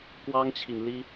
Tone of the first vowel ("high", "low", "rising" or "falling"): high